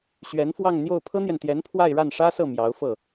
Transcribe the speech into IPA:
ɕɥɛ˧˥nfwɑ˥˧ŋn̪jo˥˩ʊ̯ pʰɤ˥n̪jɛ˨nt̪jɛ˧˥n pʰwa˥˧ɪ̯ɻa˥˩nʂä˥sɤ˥˩ mjɑ˧˥ʊ̯fɤ˥˩

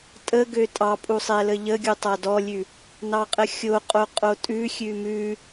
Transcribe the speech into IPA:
tʼəɡø tʼɑpʼusˤɛlə ʎəɡʲu tˤadɔlʲʉ | nɑqʼəxʲo qʼoqʼotʼʉ xʲʉmʉ

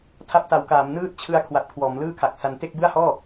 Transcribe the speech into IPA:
tʰa˦˥p̚ta˩˦wkaː˩˦m nɯː˥˩t̚t͡ɕʰɯ˦˥a̯ kʰwa˨˩t̚kʰwɔː˩˦mlɯː˥˩kʰa˨˩k̚ sa˧n te˥˩k̚bɯ˥˩a̯hɔː˥˩

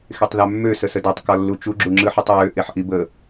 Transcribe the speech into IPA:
xetˤðamːø səsədatˤ kɒlːut͡ʃu ɡ͡ǁuŋ͡ǁɯħɯtˤɹø ʔeħʔibə

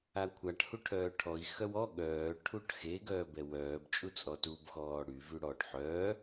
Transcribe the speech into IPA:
akʷʰaʈ huʈʰœːʈʰɔi̯ xœwɔ ɠœː ʈʰuʈxe ɡœːbɛwœːb t͡ʃʼut͡sʼɔtub xɔːɽy vyɽɔːʈħœː

